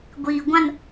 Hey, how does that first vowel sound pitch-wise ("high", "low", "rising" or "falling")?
low